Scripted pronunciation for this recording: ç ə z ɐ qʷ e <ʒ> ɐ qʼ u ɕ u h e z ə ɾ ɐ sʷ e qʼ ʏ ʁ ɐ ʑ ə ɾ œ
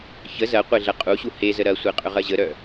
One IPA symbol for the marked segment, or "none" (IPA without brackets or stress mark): ɮ